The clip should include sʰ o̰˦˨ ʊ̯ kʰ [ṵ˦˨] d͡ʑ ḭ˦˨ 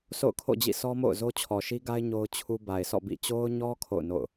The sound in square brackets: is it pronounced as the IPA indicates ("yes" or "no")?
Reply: no